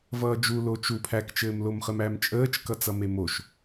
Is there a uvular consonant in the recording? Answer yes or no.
yes